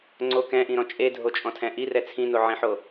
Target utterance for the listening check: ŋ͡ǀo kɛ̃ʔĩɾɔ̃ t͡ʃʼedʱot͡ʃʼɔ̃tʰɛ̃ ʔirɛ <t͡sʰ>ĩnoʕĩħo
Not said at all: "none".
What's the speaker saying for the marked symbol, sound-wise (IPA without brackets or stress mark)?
t͡sʰ